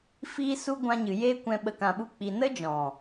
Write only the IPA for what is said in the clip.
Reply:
fiː˦su˦ ɡʷã˧ɲɨ˨ jeː˦kʷɛ̃˧ ɓə˧kã˧ɓu˦ k͡pi˨nə˦d͡ʒɔ̃˨

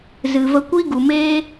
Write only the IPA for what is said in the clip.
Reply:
zɨ˨və˧kʷi˦ ɡu˨meː˦

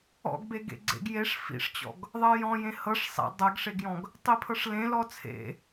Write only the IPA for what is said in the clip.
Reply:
ɔ̰ɡbe ɡḛɡ͡ǀḛɡ jeʂ fḭʂt͡ɕɔ̰ɡ | ðˤɜjɔ̃jẽ hɤʂ sˤḛ dˤɜɡʂeɡjɔ̃ɡ | tˤipʰɤʂlẽ lɔt͡sʰḛ

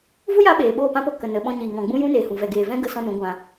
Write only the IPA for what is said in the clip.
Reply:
vu˦ja˧ ɓeː˨ɓoː˦˨pã˦po˧ kə˨nə˨ ɓɔ̃˧ɲiː˨ŋɔ̃˨ ɡ͡bũ˦jũ˦neː˨hũ˨ vɛ˨ɡeː˨vɛ̃˦ ɡə˧ sɔ̃˦nũ˨˦ɡʷã˧

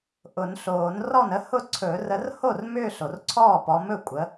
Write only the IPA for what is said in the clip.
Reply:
ʔʊ˨˩˦nɬoː˨˩˦n rɔ˥˩nə˥˧hʊ˥˩ ǀʰɵ˨˩˦ rə˨˦rho˥˩r mʏː˥˧ɬo˨rǀʰɔː˥˩pɔ˨˦ mɵ˥˩kʷʼə˨˦

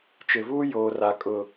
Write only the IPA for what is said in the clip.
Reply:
t͡ʃɪ˨vuː˦ joː˨ra˨ kʼʊ˨

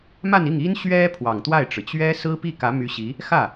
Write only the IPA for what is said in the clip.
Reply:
ma˥˧ni˥˩ŋi˥n ɕɥɛ˥ pʰwɑ˨˩ŋt̪wa˥˩ɪ̯ʈ͡ʂɻ̩˩ t͡ɕɥɛ˥ sɹ̩˥pi˥˩kä˧˥ my˧˥ɕi˧˥ | xä˥˩

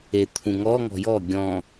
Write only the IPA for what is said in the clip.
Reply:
e t̪ʰũŋɔ ŋɔ̤jɔ ɡʲɔ̃

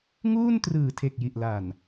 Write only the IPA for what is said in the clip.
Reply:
ŋuː˥˩ntrɯː˨˩tʰe˨˩k̚ ji˨˩ʔla˨˩n

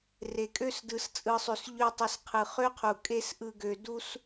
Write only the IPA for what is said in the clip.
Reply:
re˨kʼø˦s dɯ˨˦st͡sʼɯ˧sˤø˧s ʎø˦tˤe˧sqʰɯ˨ χø˦qʰu˨ kʼe˦sʔɯ˧ ɡø˧ du˦s

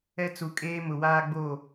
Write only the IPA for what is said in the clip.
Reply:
ɛ˦t͡su˨kʼeː˦ mʊ˨waː˦ɡ͡bo˦˨

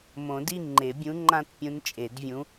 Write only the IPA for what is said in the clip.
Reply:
mõ˨˩˦di˥˧ ŋ͡ǃe˨˩˦bʲũ˧˥ŋ͡ǃã˥t pʲũ˧˥nt͡ʃʼe˨˩˦dvʲũ˧˥

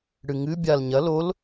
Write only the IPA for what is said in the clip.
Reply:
ɽɨŋɨ bʲal ɲɐ lol

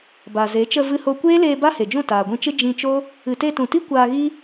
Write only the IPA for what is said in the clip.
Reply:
ba˨ze˨˦ t͡ʃə˧vɨ˧ho˧ kʷeː˦leː˧ ba˦he˨d͡ʒũ˦˨ taː˨ɡʷĩ˧t͡ʃɨ˦ d͡ʒĩ˧t͡ʃo˦ | ɨ˨te˧tũ˨ti˦ kʷaː˧ɣi˦

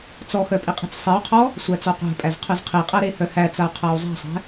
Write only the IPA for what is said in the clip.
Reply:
t͡sɔxœ pʼiqʼi̤t͡ssˤiu̯qʰɔ | sʷæt͡sɔqʷæ̤pʼæz qʰœzqʰiqʼæ ɾehœhæt͡sau̯ qʰau̯zˤæ̤sˤæ̤

